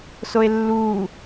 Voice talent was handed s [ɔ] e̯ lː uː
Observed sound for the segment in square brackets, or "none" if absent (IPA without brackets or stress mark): o